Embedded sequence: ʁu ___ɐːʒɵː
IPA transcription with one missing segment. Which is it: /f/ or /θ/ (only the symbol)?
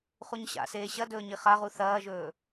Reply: θ